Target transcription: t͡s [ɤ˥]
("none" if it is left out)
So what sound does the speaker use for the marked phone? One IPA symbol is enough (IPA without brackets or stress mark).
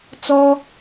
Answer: ɔ˥